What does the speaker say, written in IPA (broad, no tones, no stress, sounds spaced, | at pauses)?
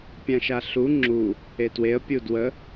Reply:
pʲ ã ʃ a ɬ u ŋ͡ǁ u | e t w e ə̯ pʲ u d w ə